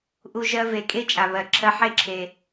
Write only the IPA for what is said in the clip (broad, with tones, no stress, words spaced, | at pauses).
ʔu˦ʒɜ˥ ve˨kʼe˥ t͡ʃʼa˨βɜ˨ǁʰɜ˦ ħe˥ǁʰe˨